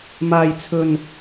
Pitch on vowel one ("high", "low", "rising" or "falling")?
low